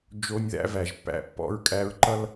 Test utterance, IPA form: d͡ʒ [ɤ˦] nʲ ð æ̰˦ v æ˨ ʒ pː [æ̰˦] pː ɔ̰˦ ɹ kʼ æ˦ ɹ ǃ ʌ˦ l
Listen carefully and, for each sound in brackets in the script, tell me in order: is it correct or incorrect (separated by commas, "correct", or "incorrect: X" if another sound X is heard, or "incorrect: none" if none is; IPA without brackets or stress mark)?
incorrect: o˦, correct